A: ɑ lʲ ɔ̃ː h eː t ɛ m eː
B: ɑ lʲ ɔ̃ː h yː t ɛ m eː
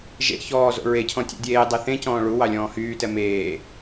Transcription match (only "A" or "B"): B